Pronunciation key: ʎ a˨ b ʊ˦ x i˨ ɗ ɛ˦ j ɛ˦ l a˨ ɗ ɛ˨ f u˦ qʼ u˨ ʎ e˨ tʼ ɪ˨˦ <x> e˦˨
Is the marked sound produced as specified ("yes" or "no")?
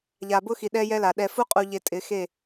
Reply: yes